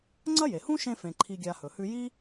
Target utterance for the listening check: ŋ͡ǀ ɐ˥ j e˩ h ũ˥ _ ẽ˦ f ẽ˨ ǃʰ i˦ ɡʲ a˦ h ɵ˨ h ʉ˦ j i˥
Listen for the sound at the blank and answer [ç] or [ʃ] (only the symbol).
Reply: ʃ